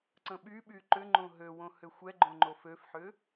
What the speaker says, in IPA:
ǀ ə̃ ɓ y ɓ y ǃ ʏ ŋ͡ǃ õ ɦ ø w õ h ʏ xʷ ɛ ɡ͡ǃ õ ŋ͡ǃ o f ø f ħ ʏ

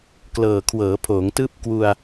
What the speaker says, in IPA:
k l ɤː˨˩ kʰ w ɤː˩˦ pʰ oː˩˦ ŋ t ɯː˦˥ p̚ k w u˧ a̯

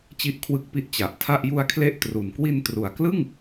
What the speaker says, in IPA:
t͡ɕ i˦˥ ʔ kʰ w ɯ˦˥ k̚ p i˦˥ ʔ t͡ɕ a˨˩ ʔ tʰ a˥˩ ʔ j u˧ a̯ kʰ l e˦˥ ʔ t r u˨˩ n k w i˧ n t r u˩˦ a̯ k l ɯ˥˩ ŋ

